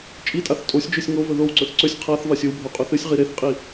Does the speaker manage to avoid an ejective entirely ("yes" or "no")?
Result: no